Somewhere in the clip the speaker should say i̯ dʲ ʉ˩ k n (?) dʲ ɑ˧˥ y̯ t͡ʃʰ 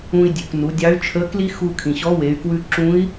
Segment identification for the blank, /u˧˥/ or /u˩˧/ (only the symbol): u˩˧